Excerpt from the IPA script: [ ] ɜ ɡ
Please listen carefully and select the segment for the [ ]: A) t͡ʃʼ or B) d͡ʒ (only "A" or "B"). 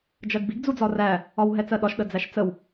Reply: B